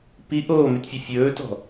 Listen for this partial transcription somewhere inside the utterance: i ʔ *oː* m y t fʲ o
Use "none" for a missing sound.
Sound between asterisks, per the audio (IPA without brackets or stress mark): oː